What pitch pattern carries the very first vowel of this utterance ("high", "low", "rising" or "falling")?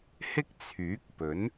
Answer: high